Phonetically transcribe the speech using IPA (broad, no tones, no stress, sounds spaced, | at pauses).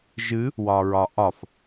ʒ ɨ | w ɒ ɹ ɒ ʔ ɒ f